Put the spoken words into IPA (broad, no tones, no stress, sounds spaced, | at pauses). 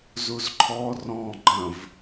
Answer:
z u z ǃʰ ɔ r ɔ̃ ɡ͡ǃ ə̃ v